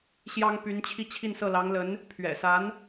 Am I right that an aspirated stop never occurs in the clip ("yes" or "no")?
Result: no